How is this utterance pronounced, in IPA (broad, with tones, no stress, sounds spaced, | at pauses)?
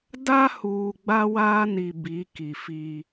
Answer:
d a˦ h uː˨ ɡ͡b a˦ w aː˦ n i˨ b i˨˦ k i˨ f i˦